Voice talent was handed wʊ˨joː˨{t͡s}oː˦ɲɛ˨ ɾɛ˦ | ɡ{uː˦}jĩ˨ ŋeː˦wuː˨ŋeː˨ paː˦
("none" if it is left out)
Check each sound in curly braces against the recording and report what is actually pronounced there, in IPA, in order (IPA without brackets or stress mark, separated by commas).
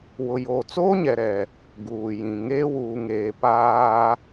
t͡s, uː˨